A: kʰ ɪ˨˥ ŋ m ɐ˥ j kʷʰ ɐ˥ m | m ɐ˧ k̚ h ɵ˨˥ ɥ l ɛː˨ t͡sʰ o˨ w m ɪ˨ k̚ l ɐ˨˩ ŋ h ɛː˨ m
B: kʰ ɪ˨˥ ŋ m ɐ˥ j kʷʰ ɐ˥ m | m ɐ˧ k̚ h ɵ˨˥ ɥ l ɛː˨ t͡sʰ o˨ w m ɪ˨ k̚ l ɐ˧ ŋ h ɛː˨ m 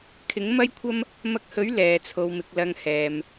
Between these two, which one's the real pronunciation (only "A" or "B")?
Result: B